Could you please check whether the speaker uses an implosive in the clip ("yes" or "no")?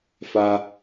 no